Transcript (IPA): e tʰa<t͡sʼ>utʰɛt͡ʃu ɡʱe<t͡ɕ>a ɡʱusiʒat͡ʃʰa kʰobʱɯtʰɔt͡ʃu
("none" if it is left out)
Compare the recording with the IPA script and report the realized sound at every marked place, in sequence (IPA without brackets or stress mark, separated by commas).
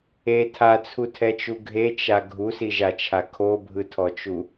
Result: t͡sʰ, t͡ʃ